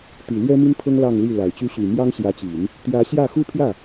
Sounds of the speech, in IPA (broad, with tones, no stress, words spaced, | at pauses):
t̪i˨˩lɥɛ˥ mi˥npʰɤ˥ŋ lɑ˥˧ŋli˥˩la˨˩ɪ̯t͡ɕy˥ ɕy˨˩mjɑ˥ŋɕjä˧˥t͡ɕi˨˩˦n | t̪jä˧˥ɕjä˥˩ xu˥pʰjä˥˩